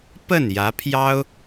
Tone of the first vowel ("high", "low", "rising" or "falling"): falling